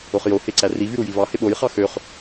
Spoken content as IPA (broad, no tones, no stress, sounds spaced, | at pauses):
o χ j o h e ǀ æ r i v y ɾ u j i v ɑ h e ɓ o j χ ɑ x ø χ